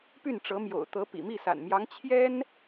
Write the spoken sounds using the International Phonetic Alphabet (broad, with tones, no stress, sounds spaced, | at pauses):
p y˥˩ n ʈ͡ʂ ɤ˧˥ m j o̰˨˩ ʊ̯ t̪ ɤ˧˥ p ḭ˨˩ m i˥˩ s a̰˨˩ n m j ɑ˧˥ ŋ t͡ɕʰ j ɛ˥ n